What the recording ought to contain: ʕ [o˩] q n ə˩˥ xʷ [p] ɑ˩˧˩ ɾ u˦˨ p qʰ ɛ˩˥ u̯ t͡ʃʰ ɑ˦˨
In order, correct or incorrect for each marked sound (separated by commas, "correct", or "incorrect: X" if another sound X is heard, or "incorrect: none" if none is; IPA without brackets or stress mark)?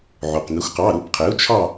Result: correct, incorrect: q